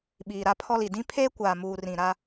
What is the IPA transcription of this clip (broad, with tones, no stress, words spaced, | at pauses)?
ɓiː˨ɾa˦pʰɔ˦li˨ dĩ˦pʰeː˦kʷaː˨muː˨ rĩ˨ɾa˦